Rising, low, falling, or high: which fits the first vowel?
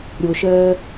low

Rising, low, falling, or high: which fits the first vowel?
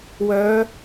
rising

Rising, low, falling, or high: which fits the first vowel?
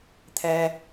low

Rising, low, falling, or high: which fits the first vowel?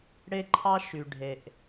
high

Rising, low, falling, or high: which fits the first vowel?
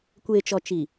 low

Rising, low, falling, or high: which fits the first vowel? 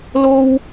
high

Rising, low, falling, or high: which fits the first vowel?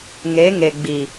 rising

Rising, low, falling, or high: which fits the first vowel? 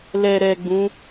low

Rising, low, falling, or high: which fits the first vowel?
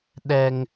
high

